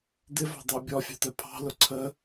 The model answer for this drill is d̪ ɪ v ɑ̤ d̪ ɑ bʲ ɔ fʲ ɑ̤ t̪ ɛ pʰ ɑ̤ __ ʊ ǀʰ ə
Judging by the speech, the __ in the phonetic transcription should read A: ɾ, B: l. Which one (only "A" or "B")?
B